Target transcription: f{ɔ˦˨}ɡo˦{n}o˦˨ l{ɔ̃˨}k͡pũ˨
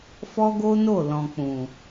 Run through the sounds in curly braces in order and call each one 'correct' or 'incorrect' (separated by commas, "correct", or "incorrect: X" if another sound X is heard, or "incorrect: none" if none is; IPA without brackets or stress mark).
incorrect: ɔ˦, correct, correct